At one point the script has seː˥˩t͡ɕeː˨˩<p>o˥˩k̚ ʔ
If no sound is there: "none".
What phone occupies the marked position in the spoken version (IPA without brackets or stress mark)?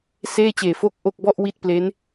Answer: f